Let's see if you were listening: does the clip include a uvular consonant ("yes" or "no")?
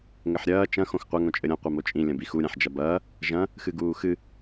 yes